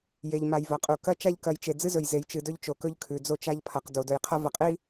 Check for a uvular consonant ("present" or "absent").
present